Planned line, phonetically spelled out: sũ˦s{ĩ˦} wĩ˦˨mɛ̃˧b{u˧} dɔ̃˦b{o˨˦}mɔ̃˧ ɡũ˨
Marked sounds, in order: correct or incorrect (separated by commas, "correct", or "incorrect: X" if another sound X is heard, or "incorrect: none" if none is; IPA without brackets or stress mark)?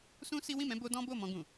incorrect: i˦, incorrect: o˧, incorrect: o˦˨